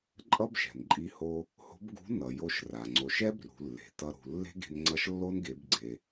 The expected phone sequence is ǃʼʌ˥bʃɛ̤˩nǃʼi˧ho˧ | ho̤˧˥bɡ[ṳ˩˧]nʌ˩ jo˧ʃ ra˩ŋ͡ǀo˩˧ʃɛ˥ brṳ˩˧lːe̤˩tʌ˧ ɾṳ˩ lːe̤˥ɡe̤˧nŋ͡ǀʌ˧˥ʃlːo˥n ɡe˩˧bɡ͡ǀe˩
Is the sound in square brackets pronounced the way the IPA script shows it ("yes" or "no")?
no